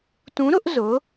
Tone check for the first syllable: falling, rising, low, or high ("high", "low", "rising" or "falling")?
rising